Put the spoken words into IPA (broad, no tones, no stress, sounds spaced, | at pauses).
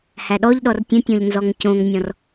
h æ ɗ ɔ ʎ ɗ ɔ r tʲ ə̃ tʲ ɔ̃ ʎ n z ɔ ŋ c õ ŋ nʲ ɔ̃ r